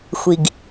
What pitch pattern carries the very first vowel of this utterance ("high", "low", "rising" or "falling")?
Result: low